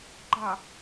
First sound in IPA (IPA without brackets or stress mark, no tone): ɡ͡ǃ